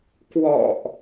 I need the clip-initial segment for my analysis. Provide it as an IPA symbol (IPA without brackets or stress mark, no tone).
k